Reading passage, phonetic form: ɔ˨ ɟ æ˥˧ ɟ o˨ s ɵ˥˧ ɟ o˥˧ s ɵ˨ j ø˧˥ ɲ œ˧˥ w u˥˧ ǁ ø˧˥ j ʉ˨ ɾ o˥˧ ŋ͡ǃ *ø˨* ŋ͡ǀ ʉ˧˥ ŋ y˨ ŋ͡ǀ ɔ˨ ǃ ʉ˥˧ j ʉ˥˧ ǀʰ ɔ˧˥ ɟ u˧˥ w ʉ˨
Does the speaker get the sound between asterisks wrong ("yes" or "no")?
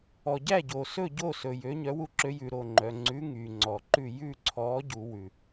yes